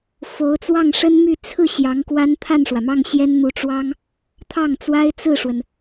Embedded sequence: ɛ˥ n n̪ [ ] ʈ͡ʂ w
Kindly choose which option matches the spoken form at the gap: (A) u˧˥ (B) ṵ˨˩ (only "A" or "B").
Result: A